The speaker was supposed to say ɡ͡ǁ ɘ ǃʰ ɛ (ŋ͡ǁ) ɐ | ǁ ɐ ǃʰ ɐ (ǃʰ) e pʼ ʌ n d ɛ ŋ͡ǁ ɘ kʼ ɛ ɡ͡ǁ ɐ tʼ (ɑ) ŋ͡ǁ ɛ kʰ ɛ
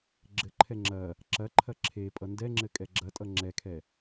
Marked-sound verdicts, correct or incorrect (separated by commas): correct, incorrect, incorrect